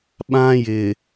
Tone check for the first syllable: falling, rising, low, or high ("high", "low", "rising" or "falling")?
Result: high